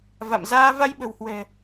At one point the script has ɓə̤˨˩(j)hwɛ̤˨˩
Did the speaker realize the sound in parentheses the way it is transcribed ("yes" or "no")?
no